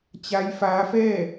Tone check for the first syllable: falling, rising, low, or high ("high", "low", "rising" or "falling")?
rising